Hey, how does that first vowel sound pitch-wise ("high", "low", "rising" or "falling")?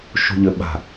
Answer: low